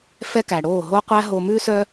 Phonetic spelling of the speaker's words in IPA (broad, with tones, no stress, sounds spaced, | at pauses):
f ɛ˦ k æ˨ ɽ oː˦˨ ɦ o˦ qʷ æ˦ ɦ o˨ m ʉ˦ s œ˦